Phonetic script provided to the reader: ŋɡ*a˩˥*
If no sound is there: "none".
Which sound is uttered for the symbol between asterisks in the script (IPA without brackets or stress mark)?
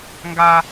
a˨